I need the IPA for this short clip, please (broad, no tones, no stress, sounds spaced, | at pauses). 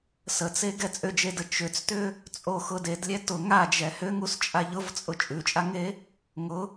s ə t͡s e ɡ ɛ t͡sʼ ʏ d͡ʒ e d ə t͡ʃ ʏ t͡s t ʏ | t͡sʼ o x ʊ d e d lʲ ɛ t ʊ ŋ a d͡ʒ ɛ h ʏ ŋ u s t͡ʃʼ a ʎ ʊ v t͡sʼ ʊ t͡ʃʼ ʉ t͡ʃʼ a ŋ e | ŋ ʊ